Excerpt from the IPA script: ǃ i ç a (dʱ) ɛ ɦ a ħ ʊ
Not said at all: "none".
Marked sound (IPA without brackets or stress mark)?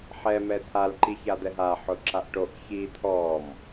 d̪